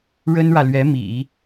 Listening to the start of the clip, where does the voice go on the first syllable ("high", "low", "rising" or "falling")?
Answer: high